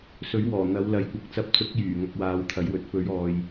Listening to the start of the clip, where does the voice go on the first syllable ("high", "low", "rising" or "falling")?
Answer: rising